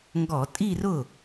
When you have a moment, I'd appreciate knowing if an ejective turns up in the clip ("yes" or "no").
yes